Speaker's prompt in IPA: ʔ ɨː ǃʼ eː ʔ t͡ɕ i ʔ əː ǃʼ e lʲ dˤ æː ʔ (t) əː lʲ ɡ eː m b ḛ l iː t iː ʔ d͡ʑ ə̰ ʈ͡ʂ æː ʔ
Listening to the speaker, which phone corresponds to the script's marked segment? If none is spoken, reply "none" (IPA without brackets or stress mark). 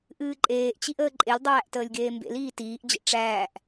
t